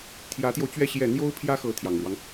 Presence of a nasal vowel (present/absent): absent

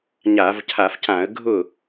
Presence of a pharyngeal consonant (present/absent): absent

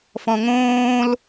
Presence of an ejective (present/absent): absent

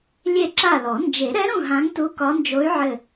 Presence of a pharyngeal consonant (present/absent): present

